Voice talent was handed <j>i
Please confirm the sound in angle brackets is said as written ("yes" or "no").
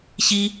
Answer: no